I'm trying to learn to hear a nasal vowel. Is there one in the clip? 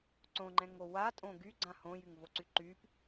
yes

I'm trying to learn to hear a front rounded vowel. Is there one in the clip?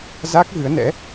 no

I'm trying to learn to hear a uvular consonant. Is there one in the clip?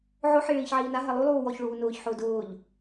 no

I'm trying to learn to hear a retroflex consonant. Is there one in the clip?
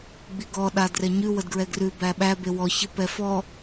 no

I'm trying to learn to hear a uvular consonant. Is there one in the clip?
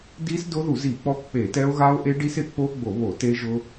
no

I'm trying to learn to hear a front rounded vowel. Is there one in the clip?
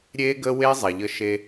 no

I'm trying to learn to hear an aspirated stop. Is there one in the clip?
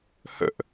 no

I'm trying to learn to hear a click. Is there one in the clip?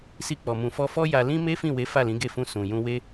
no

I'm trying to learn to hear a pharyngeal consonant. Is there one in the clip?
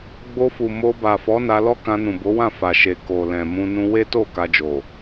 no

